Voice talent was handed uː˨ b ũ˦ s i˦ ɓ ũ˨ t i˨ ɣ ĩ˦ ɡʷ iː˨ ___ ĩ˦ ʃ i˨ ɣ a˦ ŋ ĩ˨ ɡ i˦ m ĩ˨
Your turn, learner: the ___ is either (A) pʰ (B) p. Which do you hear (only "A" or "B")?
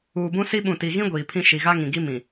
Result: A